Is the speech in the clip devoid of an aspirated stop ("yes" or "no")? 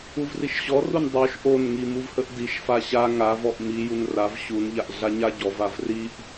yes